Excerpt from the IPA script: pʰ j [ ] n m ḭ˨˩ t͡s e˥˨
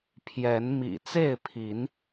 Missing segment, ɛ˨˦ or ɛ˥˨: ɛ˨˦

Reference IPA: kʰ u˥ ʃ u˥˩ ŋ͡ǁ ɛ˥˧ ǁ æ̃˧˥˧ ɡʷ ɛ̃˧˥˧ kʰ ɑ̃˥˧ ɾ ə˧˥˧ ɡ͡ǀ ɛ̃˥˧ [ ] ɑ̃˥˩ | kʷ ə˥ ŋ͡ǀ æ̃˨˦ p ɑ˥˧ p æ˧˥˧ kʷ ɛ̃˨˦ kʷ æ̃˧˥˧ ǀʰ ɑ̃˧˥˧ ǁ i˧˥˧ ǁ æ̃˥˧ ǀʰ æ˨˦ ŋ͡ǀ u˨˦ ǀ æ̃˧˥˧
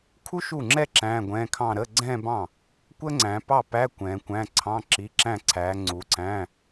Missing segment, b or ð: b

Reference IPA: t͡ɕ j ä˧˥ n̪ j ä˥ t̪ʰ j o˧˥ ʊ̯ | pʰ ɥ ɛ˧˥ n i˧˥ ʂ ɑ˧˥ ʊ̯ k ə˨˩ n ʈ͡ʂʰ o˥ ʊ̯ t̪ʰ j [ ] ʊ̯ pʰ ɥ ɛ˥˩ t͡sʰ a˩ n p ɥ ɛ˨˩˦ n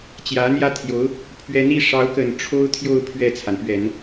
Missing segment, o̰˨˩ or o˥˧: o˥˧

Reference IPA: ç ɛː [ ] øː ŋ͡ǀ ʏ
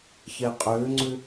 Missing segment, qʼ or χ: qʼ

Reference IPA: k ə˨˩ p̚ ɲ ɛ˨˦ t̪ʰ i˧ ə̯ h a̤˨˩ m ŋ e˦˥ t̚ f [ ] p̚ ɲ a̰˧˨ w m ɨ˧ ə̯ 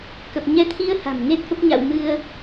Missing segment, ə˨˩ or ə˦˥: ə˦˥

